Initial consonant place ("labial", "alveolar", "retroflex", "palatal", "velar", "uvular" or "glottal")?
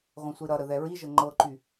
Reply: uvular